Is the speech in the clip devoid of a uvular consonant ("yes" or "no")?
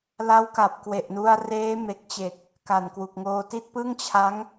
yes